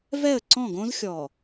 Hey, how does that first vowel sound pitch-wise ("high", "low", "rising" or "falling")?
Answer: falling